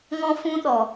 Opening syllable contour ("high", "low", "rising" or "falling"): high